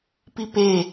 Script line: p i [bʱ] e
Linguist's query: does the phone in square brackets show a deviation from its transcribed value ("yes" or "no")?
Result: yes